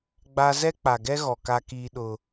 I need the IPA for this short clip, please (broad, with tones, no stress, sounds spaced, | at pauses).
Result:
ɡ͡b a˦ z ɛ˦ k͡p a˨ ɡ ɛ˦ ɣ ɔ˨ k a˦ k iː˦ ɗ ʊ˦